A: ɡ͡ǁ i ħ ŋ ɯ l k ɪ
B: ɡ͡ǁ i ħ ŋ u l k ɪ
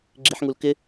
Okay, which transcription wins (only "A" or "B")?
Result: B